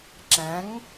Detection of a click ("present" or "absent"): present